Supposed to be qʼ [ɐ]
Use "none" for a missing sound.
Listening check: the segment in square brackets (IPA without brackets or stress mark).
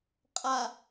a